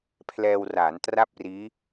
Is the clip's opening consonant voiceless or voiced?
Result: voiceless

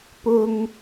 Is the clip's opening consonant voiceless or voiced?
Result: voiceless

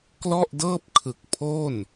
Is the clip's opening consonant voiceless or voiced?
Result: voiceless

